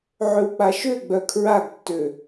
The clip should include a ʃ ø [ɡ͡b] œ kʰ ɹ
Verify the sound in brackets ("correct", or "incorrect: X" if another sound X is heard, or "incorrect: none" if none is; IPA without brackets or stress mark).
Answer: correct